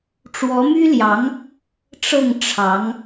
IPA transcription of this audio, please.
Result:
ʈ͡ʂ w ɔ˧˥ m y˥ l j ɑ˧˥ ŋ | ʈ͡ʂ ɤ˥˩ ŋ ʈ͡ʂʰ ɑ˧˥ ŋ

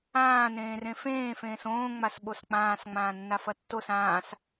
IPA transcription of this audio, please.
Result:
ãː n ẽː r ẽ f ẽː f ẽː s õː ŋ͡m a s ɓ o s k͡p ãː s ŋ͡m ãː nː a f ɐ tː o s ãː s

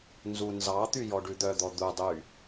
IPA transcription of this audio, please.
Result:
n z u n z ɑ t̪ y j ɔ ɖ ʉ d̪ œ d̪ ɔ d̪ u dˤ y

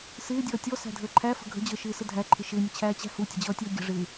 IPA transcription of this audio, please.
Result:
s ɪː dʲ ʌː tʲ ɔ s æ̤ dʱ əː ǃʰ æ f ə̤ ɡʱ ə̤ d͡ʑ əː ʃ ɪː s ə dʱ æ ǃʰ ɪ ʃ ɪː nʲ ə t͡ɕʰ æː t͡ɕ æ̤ h u tʲ ə̤ d͡ʑ ʌː tʲ ʌː ɡʲ ə̤ ʐ ɪː

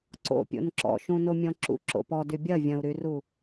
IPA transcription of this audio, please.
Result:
ǀ o̰ pʲ o̰ n ǁ ɔ̰ ʃ ũ n o mʲ ɔ̃ ǁ ṵ ǁ o̰ p ɔ d y bʲ ɐ vʲ ɐ̃ u̯ ɾ y r u

